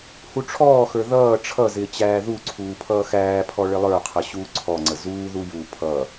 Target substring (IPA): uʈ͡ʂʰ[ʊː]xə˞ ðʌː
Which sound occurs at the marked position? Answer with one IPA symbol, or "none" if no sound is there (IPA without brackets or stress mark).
ɔː